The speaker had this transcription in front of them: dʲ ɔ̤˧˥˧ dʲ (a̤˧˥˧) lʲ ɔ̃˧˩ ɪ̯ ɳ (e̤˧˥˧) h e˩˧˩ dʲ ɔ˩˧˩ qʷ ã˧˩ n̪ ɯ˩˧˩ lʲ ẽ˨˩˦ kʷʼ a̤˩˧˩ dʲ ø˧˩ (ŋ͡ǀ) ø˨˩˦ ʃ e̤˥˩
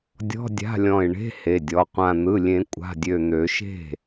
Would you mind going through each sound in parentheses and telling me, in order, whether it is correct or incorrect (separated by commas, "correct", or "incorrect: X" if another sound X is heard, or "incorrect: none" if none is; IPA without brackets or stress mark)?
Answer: correct, correct, incorrect: n̪